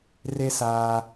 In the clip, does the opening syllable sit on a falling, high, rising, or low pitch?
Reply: high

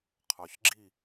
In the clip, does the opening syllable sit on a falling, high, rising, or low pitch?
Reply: low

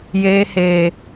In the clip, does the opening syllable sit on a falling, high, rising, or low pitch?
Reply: high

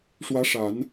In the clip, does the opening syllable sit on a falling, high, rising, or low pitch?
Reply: rising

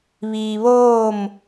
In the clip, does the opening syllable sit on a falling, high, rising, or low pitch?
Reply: low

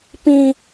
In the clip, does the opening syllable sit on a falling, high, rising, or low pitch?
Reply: high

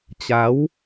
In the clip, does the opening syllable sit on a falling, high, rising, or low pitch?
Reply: rising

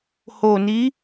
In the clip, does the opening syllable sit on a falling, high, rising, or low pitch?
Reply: low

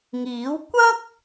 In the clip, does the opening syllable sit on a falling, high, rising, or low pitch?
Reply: rising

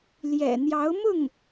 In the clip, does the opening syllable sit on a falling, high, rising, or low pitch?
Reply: low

